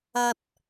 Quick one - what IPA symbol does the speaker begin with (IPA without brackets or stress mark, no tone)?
ɐ